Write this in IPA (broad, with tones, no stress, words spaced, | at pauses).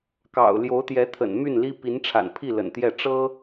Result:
kɑ̰˨˩ʊ̯ ljo˧˥ʊ̯t̪jɛ˧˥t̪ʰə̰˨˩n my˥˩nli˥ pi˧˥nʈ͡ʂʰa̰˨˩npʰi˥˩ lə̰˨˩nt̪jɛ˥˩ ʈ͡ʂɤ˥